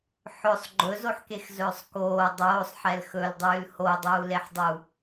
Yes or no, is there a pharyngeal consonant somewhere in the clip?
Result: yes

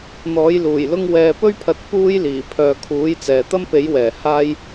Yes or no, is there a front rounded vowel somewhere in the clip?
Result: yes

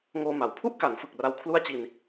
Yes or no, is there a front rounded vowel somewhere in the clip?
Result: no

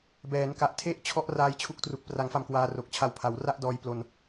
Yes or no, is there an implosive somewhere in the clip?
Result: no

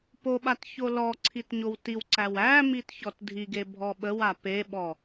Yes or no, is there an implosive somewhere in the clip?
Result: yes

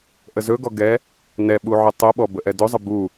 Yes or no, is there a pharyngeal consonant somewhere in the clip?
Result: yes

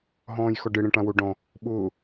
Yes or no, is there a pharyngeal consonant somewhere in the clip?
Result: no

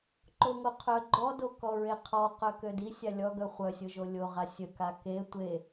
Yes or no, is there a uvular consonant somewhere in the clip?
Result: yes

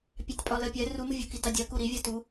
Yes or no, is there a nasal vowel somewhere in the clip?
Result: no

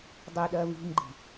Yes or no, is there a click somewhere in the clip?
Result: yes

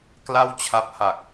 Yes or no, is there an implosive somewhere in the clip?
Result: no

